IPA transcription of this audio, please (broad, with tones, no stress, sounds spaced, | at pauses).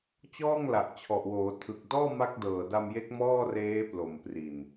t͡ɕ ɔː˥˩ ŋ l a˨˩ ʔ t͡ɕʰ ɔ˨˩ ʔ w oː˩˦ tʰ ɯ˨˩ k̚ d ɔː˥˩ m a˦˥ k̚ d ɤː˨˩ d a˧ m j e˦˥ k̚ m ɔː˥˩ r eː˦˥ p l o˨˩ m p r i˨˩ n